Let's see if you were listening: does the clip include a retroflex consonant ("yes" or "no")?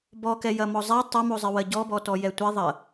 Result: no